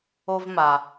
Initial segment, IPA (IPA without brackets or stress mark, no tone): o